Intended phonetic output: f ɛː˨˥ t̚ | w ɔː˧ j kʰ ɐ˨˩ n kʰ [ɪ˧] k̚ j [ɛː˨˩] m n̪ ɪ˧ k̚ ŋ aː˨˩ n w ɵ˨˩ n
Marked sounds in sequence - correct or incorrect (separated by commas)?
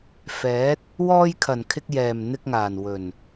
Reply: correct, correct